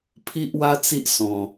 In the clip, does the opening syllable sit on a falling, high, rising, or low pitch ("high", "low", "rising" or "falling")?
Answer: high